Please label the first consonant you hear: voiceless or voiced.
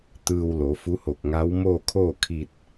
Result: voiceless